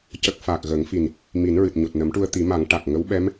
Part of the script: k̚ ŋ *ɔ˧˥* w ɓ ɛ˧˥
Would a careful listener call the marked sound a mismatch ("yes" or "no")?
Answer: yes